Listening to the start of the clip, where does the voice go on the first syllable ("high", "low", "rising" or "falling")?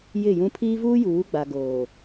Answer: falling